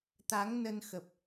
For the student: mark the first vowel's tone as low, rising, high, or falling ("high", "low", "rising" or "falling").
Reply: rising